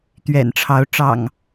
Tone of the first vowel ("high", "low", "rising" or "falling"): low